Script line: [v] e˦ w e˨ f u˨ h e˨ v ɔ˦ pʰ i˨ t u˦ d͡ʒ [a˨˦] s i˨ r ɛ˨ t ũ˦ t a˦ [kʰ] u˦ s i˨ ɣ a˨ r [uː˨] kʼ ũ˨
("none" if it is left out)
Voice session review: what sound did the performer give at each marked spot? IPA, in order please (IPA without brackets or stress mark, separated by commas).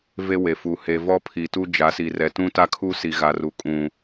v, a˨˦, kʰ, u˨